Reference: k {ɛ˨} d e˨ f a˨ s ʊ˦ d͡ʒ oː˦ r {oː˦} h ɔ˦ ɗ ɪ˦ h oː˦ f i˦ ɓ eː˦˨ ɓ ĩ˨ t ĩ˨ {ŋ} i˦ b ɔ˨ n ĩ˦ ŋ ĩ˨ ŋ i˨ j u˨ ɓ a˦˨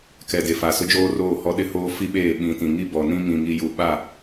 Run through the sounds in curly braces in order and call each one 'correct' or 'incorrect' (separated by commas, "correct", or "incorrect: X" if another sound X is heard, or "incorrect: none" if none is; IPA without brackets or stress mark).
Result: correct, incorrect: oː˦˨, correct